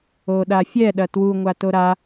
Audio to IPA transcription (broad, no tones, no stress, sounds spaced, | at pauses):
o ɗ a fʲ ɛ ɗ ɐ t w u ŋʷ a t o ɾ a